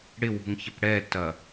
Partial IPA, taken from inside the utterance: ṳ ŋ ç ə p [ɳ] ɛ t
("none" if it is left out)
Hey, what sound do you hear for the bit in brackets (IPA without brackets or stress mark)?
ɽ